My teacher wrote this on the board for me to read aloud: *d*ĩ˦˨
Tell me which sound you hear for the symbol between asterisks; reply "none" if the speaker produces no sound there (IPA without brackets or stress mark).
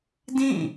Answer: d